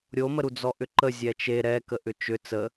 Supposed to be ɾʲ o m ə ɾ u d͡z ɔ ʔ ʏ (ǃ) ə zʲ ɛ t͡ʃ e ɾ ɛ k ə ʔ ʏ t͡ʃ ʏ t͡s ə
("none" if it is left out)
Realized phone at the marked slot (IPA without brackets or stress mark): ǃ